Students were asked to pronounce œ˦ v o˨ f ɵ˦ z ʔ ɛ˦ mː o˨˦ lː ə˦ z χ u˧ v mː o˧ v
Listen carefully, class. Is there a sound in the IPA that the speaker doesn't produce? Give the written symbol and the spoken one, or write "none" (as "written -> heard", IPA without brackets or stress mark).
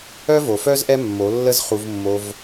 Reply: ɵ˦ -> œ˦